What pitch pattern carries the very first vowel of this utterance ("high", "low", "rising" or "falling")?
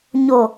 low